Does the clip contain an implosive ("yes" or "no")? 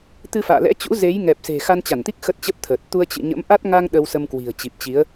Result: yes